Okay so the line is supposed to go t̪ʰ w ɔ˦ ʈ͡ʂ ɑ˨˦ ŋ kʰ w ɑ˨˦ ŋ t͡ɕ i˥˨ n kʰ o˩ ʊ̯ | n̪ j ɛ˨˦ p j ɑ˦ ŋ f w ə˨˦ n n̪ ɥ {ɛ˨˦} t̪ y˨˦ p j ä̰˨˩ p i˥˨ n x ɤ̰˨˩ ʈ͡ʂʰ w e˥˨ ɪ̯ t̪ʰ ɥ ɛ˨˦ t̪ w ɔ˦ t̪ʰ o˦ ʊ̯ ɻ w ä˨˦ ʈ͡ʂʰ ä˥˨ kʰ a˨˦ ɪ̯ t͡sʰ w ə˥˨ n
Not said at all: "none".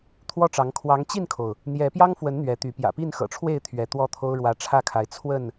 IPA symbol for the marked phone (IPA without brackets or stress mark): ɛ˨˦